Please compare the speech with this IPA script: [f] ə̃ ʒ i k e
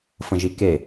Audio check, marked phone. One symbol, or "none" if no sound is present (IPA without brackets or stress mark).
f